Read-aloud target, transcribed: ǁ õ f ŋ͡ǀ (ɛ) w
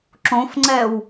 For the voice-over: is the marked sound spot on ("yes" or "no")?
yes